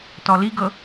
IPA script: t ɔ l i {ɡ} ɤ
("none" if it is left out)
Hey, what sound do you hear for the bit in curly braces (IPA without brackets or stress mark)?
ɡ